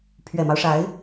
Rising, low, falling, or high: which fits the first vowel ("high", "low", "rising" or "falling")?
low